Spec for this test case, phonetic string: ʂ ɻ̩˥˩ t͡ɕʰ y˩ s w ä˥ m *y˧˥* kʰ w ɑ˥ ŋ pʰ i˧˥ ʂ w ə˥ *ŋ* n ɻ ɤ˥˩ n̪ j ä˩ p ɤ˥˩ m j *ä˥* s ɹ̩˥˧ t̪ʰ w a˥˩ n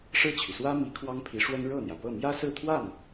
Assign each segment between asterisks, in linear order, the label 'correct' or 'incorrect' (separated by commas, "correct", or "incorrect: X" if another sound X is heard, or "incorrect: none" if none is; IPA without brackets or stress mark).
incorrect: i˧˥, incorrect: none, correct